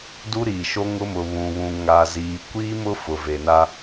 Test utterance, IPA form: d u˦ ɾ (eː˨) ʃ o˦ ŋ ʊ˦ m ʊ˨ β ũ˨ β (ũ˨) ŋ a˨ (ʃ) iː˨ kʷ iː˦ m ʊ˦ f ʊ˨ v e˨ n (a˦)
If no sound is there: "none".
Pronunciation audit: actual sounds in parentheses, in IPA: iː˨, ũ˨, z, a˦

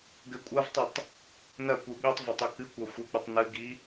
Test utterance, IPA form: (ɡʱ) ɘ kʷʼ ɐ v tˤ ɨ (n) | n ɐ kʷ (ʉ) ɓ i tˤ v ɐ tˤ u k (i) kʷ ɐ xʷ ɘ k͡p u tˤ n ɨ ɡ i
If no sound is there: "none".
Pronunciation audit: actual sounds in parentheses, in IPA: ɡ, tˤ, ɨ, ɨ

